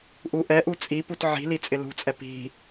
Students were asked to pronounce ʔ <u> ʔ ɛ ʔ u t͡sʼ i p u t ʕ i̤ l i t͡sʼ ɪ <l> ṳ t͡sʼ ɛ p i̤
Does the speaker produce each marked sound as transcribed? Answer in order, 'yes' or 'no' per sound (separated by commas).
yes, yes